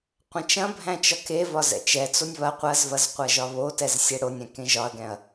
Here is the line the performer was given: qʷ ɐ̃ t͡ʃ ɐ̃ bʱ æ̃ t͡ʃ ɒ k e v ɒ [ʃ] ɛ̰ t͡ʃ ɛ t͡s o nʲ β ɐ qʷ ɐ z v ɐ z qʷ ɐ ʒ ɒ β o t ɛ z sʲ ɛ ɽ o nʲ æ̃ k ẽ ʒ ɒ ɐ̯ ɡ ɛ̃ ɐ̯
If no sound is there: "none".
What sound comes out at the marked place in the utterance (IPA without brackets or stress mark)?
z